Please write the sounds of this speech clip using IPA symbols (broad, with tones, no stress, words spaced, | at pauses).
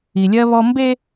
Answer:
i˨lʲɜ˦βɔ˦ mbe˦